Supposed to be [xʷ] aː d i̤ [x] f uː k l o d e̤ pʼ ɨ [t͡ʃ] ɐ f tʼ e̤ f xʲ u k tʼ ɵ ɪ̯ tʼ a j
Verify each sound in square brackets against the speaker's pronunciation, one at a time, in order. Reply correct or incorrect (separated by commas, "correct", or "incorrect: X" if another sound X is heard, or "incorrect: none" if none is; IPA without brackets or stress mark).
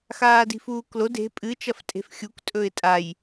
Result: incorrect: x, incorrect: none, correct